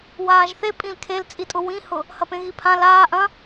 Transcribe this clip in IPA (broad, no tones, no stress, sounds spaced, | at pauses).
w aː ʒ θ e pʼ ĩ l kʰ e l t͡sʼ i tʼ ʊ w ĩ h ʊ | h ɐ p ẽ ɣ i pʰ ã l aː ʔ ɐ̃